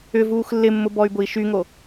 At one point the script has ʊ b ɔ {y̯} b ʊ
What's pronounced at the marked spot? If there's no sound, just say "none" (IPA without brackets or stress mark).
y̯